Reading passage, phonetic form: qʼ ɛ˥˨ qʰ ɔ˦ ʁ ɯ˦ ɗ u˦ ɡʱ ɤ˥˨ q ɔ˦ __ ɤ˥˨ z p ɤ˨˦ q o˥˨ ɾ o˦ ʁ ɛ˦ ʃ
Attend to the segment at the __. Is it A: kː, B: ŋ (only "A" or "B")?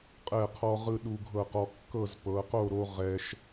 A